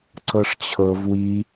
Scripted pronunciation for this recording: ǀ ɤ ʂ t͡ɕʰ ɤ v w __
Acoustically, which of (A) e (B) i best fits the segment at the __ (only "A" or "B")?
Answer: B